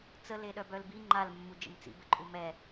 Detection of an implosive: present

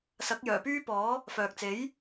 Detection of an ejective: absent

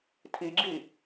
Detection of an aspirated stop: present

